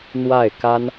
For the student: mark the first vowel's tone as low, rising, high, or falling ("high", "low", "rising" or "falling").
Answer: falling